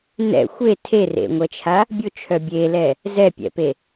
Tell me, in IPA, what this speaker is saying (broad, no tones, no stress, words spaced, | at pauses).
nɛ̰ xʷe tʰerḛŋʷɛt͡ʃʰa | bʲʊt͡ʃʰœ bʲelɛ | zɛpʲɛ̰pe